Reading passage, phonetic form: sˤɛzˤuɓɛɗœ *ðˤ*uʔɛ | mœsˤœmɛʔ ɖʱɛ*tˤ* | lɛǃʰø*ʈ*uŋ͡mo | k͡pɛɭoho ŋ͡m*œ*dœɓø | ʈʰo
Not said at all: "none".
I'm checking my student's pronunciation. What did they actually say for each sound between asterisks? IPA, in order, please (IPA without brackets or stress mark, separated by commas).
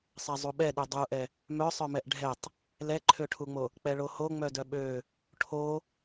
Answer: dˤ, tˤ, ʈʰ, œ